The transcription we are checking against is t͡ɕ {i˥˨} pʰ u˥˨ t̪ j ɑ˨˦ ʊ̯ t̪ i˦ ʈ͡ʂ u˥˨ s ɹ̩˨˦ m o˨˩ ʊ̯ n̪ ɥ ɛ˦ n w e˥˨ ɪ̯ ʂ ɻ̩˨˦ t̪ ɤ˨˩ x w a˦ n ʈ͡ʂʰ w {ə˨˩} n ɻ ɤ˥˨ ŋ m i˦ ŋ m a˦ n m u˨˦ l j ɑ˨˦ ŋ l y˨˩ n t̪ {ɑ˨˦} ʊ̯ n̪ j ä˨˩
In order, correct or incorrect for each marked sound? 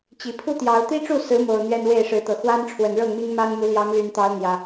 incorrect: i˨˩, correct, correct

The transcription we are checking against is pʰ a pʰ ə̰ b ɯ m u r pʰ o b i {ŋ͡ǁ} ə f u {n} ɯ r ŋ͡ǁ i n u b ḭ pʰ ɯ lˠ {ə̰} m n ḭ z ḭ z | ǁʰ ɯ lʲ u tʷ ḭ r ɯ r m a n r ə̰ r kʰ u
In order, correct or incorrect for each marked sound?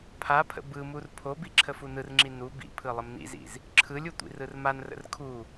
incorrect: ǁʰ, correct, incorrect: ə

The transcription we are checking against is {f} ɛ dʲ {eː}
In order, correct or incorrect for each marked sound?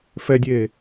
correct, correct

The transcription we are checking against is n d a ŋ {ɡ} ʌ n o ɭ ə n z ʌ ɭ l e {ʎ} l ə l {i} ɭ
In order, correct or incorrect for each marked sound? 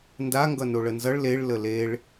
correct, incorrect: ɭ, incorrect: e

